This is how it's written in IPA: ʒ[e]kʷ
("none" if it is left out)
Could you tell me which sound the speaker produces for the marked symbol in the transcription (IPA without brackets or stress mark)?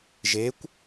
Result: e